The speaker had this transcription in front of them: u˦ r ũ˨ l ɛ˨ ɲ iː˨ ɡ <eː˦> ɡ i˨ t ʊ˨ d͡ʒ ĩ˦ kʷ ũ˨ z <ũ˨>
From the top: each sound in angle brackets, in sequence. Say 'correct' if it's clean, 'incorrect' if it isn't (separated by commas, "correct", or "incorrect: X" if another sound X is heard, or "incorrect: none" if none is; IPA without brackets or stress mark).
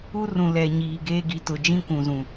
correct, correct